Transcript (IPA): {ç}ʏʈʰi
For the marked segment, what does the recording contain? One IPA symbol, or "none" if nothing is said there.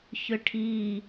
ç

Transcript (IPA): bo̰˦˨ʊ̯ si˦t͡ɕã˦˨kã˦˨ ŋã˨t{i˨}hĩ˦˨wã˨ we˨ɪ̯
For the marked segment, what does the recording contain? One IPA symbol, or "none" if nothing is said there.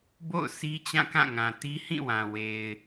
i˦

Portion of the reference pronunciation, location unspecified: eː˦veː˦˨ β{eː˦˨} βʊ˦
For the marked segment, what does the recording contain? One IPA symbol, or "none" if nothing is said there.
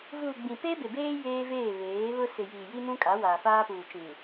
eː˨˦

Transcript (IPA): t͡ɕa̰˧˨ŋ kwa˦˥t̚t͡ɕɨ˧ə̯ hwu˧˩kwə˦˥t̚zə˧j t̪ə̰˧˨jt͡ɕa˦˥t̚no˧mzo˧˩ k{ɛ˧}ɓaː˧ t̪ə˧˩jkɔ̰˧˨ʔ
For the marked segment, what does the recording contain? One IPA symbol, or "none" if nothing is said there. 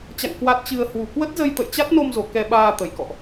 ɛ˧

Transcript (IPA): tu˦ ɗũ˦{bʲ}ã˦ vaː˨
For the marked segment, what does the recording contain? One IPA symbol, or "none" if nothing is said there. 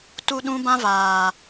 b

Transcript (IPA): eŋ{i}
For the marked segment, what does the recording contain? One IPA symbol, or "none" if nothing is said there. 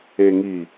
i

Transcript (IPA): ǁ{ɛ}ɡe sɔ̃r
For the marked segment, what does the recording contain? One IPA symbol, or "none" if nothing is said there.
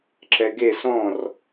ɛ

